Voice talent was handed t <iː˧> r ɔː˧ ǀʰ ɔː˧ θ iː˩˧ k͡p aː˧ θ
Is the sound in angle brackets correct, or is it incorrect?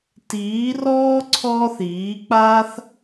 incorrect